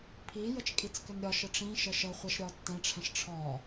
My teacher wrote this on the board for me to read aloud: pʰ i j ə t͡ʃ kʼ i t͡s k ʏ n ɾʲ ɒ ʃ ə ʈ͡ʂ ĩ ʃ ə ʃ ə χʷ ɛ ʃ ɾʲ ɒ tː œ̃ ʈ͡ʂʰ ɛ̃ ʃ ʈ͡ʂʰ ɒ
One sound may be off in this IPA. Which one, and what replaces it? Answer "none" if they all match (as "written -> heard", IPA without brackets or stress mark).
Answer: œ̃ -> ɛ̃